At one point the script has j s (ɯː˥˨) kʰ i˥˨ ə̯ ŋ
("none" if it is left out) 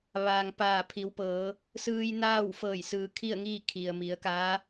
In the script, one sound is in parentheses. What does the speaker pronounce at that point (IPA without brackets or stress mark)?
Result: ɯː˩